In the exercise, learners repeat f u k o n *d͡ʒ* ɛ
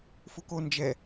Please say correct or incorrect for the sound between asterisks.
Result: correct